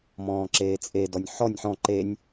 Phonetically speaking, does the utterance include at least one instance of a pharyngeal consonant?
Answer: yes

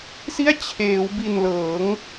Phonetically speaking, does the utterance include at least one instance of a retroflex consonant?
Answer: no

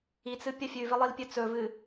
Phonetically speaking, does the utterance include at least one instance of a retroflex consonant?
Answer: no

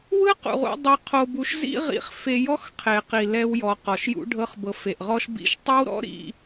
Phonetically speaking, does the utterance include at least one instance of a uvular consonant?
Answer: yes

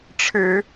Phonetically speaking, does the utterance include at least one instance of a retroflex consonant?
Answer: yes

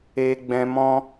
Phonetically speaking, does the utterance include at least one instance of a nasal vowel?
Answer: yes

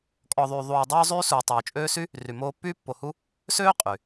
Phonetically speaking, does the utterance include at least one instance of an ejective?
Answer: yes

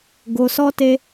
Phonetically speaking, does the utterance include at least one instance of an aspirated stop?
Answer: no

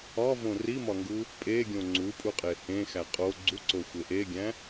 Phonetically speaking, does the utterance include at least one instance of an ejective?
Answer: yes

